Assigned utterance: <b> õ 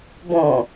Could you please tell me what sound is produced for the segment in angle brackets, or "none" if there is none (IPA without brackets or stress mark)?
b